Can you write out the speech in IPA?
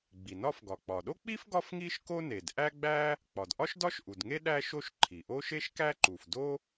ɡ͡b i˩ n ɒ˥ f ɡ ɒ˩ k͡p ɒ˩ ɗ o˥ k͡p i˥ f ɡ ɒ˥ f ŋ i˥ ʃ k o˥ n e˩ d ʔ æ˥ ɡ͡b æ˥ | k͡p ɒ˩ d ʔ ɒ˥ ʃ d ɒ˥ ʃ ʔ u˩ d ŋ e˥ ɗ æ˥ ʃ o˥ ʃ ǃʰ i˩ ʔ o˥ ʃ e˥ ʃ k æ˥ ǃ u˩ f d o˥

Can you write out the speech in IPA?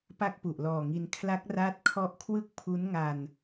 p a˥˩ k̚ p u˨˩ ʔ l ɔː˨˩ ŋ i˧ n kʰ l a˦˥ k̚ r aː˦˥ t̚ kʰ ɔ˦˥ ʔ kʰ w ɯ˥˩ k̚ pʰ u˦˥ n ŋ a˧ n

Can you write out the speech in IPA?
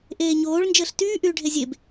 ʔ eː ɲ oː ɭ n d͡ʒ əː ɬ t yː ʔ yː ɖʱ e zʲ e b

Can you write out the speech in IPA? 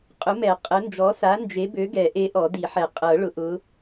qʼ ʊ˨˥ m ɛ˨˩˦ qʼ ə˨˥ n d͡ʒ ɔ˨˥ s a˨˥ n d͡ʒ e˨˥ b ø˨˥ ɡ ɛ˨˩˦ ʔ e˨˥ ʔ ɔ˨˩˦ d i˨˩˦ ħ ɛ˨˩˦ qʼ ɤ˨˩˦ ɭ ʊ˨˥ ʔ ʊ˨˥

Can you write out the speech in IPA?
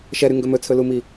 ʃ ɛ ɾ y ŋ ɡ ɵ m ɵ t͡sʰ ɵ l u m i

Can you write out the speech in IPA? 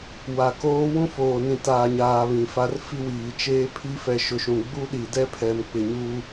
w a˨ k oː˦ w ũ˦ f oː˨ n ĩ˨ t aː˨ ɲ aː˨ β ĩ˨ f a˦ r f i˦ w iː˨ t͡ʃ eː˦ pʰ i˦ f ɛ˨ ʃ ʊ˨ ʃ ũ˨ ɡ͡b u˦ ɗ i˨ d ɛ˦ pʰ ɛ˨ m k͡p ɪ˨ ɲ u˦

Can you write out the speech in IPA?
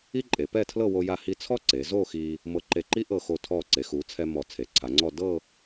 i˥ ǃʼ e˩˧ p ɛ˥˧ tʰ l ɤ˥˧ w o˧ j a˧ h i˧ t͡sʰ ɔ˥ ǀ e˩˧ z o˥˧ x i˧ | m ɤ˧ ǃ e˧˩ ǃ i˥ ʔ ɤ˧˩ x o˧˩ tʰ ɔ˧˩ ǀ e˩˧ x u˩˧ t͡sʰ ɛ˧ m ɔ˧˩ t͡sʰ e˩˧ ǀʰ a˩˧ ŋ͡ǀ ɔ˥˧ d ɤ˥˧

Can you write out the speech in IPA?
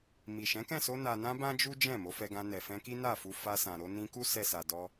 m i˨ ʃ ɛ̃˨˦ k ɛ̃˦˨ s o˧ n a˨ n ã˧ b ã˦ d͡ʒ u˦ d͡ʒ ɛ̃˦˨ m o˨˦ f ɛ˧ ɡ ã˧ n ɛ˨ f ɛ̃˧ k i˦ n a˦˨ f u˧ f a˧ s ã˨ ɾ o˧ n ĩ˧ k u˦ s ɛ˦ s a˧ d ɔ˧

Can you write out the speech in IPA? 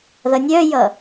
ð ʌ nʲ œ j ʌ

